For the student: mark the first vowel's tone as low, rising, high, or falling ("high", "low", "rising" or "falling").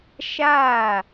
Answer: falling